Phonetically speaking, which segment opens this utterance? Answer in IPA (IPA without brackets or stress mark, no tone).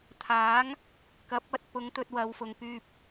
t̪ʰ